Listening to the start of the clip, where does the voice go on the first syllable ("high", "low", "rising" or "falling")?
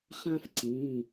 high